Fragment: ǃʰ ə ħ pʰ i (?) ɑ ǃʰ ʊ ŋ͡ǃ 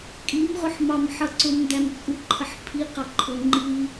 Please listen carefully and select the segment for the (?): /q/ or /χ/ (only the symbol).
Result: q